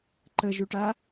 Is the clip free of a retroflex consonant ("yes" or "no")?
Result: no